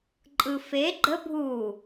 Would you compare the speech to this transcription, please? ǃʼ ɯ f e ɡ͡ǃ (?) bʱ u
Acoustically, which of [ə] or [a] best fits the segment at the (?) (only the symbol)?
ə